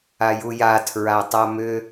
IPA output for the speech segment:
a j u j a tʰ ɹ a tˤ a m ʏ

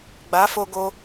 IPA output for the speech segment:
ɡ͡b a˨˦ f o˧ ɡ o˧

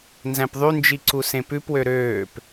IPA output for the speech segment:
n z æ̃ p ðˤ y n d͡ʒ i ǀ u s ẽ p ʉ p w ø ɾ øː p

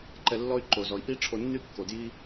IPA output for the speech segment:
ǃ ɛ˧ lː ɔ˦ y̯ ǃ o˨ z ɔ˨ i̯ ʔ i˦ ʈ͡ʂʰ o˧ nː y˦ kː o˨ d j i˦

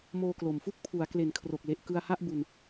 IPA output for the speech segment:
m oː˧ k l o˨˩ m f u˥˩ k̚ pʰ u˩˦ a̯ k l e˨˩ n kʰ r o˨˩ k̚ l e˨˩ ʔ k ɯ˧ a̯ h a˥˩ ʔ b u˧ n

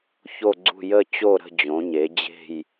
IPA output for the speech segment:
ç o˦˨ ɡ͡ǀ ṳ˦˨ j ə˦˨ t͡ɕ o˦˨ ɾ ə̤˦˨ d͡ʑ õ˩˧ ɲ e˩˧ d͡ʑ e̤˦˨ j

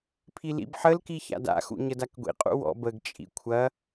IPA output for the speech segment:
pʰ i l ḭ b ħ ə l k i ç a̰ d a̰ x ṵ ɲ ə d a k ɡʷ ḭ qʼ ṵ w ɔ̰ b ə ɡ t͡ʃʼ ḭ kʷʰ ɐ

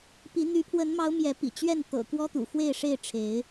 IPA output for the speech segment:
p i˨˦ n̪ y˨˦ pʰ w ə˨˦ n m ɑ˨˦ ʊ̯ m j ɛ˨˦ p ḭ˨˩ t͡ɕ ɥ ɛ˥˨ n t̪ ɤ̰˨˩ k w ɔ˦ t̪ ṵ˨˩ x w e˥˨ ɪ̯ ʂ e˥˨ ɪ̯ ʈ͡ʂʰ e˨˦ ɪ̯

